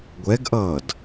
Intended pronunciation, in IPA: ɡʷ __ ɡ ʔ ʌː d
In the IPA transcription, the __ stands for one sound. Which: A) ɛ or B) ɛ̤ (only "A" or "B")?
A